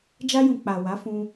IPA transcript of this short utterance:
d͡ʒa˧jũ˨ k͡pa˨wa˨˦fũ˧

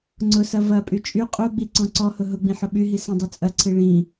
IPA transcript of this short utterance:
ŋ͡ǀʊsɐ vɐpʼy t͡ʃʼy qʼuɡ͡bi ǀɔ̃ǀɔhʊ ɦʊɡ͡bĩ ħʊɓyɦi sĩdˤɐt͡sʼɐǀʰi ɭĩ

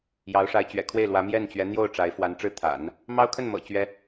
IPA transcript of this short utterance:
jɑ˧˥ʊ̯ ʂa˧˥ɪ̯t͡ɕɥɛ̰˨˩kʰwe˥˩ɪ̯lwä˧˥ mjɛ˥˩nt͡ɕɥɛ˧˥n̪jo˥˩ʊ̯ ʈ͡ʂa˧˥ɪ̯fwa˧˥nʈ͡ʂɻ̩˥ t̪ʰa̰˨˩˦n | mɑ˥ʊ̯kʰə˥˩nmɤ̰˨˩ t͡ɕɥɛ˥

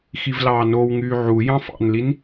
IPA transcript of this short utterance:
xivlɑːnowŋyː ʕu jɑ̃fɑ̰nlin

